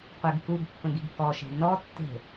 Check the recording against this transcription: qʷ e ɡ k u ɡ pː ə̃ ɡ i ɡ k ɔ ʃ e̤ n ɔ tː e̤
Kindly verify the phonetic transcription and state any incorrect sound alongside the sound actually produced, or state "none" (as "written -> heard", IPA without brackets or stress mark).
none